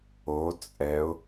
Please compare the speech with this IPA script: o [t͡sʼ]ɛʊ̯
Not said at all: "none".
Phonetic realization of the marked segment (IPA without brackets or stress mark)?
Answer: t͡sʼ